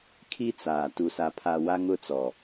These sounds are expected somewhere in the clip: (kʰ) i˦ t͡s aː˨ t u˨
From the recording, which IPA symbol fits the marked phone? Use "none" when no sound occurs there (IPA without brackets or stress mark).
kʰ